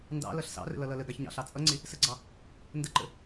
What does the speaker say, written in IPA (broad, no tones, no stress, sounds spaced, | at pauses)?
n d ɑ̰ l ʌ ɬ s ɑ̰ r ə̰ l ʌ l ʌ l ə ɡ ɑ ç ɲ ɑ̰ ɬ ɑ t͡sʼ ʌ ŋ͡ǀ ɪ | s ə ɡ͡ǀ ɑ | n d ə ǃ ə̰